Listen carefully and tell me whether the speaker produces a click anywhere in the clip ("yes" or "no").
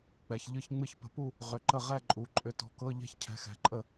yes